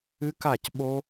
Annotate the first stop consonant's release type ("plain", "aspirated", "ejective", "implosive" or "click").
plain